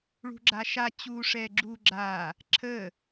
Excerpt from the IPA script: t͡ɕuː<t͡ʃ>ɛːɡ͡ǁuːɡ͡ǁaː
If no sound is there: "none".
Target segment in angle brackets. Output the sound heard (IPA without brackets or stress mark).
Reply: ʂ